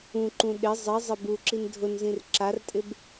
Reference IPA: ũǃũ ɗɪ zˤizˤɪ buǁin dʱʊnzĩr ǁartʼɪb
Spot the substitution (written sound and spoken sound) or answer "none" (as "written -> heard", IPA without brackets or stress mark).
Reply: none